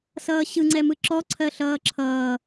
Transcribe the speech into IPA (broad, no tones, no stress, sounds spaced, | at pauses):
s ʌː ɕ ɯ ŋ͡ǀ ɛ m ɯ ǁ ɔ ǀʰ ɜ ɬ ʌː ǁʰ ʌː